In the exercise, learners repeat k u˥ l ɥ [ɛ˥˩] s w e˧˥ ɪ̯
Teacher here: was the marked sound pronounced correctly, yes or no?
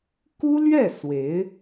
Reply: yes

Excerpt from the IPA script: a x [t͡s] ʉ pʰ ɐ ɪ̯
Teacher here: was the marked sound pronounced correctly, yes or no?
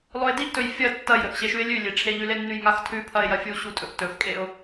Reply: no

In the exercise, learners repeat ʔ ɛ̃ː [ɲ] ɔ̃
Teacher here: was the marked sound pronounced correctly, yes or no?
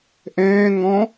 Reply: no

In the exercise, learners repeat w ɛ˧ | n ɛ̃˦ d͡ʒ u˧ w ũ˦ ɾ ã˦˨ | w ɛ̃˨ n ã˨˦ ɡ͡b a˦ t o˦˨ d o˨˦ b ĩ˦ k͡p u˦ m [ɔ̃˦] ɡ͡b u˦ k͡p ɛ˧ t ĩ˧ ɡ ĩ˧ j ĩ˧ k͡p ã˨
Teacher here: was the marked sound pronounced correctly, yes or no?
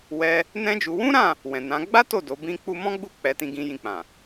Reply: yes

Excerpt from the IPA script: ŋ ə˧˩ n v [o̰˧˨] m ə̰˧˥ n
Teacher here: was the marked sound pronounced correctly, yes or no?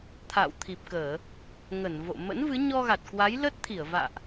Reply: yes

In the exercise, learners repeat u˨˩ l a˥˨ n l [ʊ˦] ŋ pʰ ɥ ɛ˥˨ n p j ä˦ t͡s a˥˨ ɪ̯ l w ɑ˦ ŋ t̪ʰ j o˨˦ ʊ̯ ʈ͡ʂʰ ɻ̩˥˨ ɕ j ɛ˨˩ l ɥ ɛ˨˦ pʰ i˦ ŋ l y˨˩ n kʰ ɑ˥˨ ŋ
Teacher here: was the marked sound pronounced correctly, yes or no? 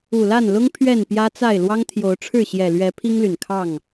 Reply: yes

